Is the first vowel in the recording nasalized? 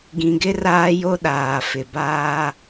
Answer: yes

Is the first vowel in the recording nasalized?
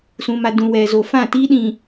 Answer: yes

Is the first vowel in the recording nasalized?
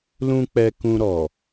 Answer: yes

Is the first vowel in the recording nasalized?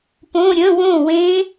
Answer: yes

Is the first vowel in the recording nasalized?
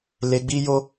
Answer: no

